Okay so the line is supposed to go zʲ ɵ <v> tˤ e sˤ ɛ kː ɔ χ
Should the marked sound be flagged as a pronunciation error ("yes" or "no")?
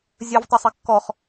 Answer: no